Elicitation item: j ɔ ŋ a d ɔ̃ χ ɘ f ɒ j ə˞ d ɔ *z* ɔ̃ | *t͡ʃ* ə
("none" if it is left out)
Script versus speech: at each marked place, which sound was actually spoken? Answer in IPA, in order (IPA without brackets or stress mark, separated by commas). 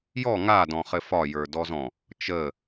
z, t͡ʃ